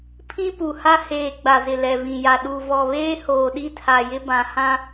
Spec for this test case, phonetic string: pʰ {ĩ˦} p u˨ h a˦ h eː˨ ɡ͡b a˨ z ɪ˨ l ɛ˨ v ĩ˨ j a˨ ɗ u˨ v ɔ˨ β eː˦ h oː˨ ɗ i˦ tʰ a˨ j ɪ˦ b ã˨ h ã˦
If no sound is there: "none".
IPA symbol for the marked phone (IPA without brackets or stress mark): ĩ˦